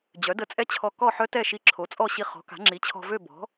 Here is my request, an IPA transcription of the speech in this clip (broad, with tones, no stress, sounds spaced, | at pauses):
d͡ʑ œ˩˥ d ə˧ t͡sʼ ɛ˦˥ t͡ɕʰ ɔ˧ k ɔ˥˨ ħ œ˦˥ t ɛ˥˨ ʃ i˧ ǁʰ o˩˥ t͡sʼ ɔ˥˨ ɕ i˧ χ ɔ̤˩˥ k a̤˩˥ ŋ͡ǁ i˩˥ t͡ɕʰ ɔ̤˧ v ø˥˨ b ɔ̤˩˥